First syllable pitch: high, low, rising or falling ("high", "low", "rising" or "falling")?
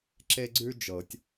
high